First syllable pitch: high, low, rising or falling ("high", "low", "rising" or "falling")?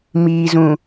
low